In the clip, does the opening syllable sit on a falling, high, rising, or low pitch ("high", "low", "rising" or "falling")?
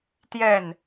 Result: falling